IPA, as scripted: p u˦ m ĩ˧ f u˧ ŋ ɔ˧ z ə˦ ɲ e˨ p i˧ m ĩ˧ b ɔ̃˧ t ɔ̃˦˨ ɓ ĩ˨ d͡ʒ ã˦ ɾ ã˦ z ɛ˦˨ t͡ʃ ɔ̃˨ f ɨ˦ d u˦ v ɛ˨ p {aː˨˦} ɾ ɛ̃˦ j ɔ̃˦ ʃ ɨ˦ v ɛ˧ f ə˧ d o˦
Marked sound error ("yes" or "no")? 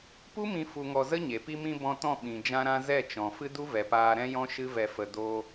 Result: yes